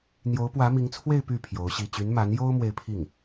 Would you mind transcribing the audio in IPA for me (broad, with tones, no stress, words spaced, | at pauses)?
n̪jo˧˥ʊ̯pwä˧˥mi˧˥ŋt͡sʰwe˥˧ɪ̯ py˥˩ pʰjo˧˥ʊ̯ɕi˥˩ t͡ɕy˧˥nma˧˥njo˥ʊ̯ mwe˥˧ɪ̯pʰi˥˩ŋ